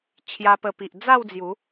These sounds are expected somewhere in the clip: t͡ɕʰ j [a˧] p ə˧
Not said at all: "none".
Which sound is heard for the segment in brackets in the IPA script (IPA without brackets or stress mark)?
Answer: a˧